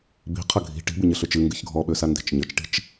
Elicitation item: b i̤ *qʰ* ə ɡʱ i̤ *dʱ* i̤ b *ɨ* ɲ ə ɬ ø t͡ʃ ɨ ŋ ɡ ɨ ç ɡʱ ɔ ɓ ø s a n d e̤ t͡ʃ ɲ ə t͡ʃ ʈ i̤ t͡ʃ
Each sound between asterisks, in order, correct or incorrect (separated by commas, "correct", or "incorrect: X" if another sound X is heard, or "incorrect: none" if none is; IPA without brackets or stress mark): correct, incorrect: ʈ, correct